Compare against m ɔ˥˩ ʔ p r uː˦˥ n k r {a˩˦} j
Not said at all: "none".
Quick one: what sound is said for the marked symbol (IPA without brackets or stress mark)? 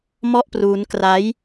a˦˥